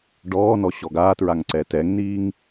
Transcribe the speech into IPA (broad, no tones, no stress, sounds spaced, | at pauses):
ɖ ɔː n ɔ ɕ ɔ ɡ aː t ɹ a ŋ ǀ ɛ t ɛ ŋ n̪ iː ŋ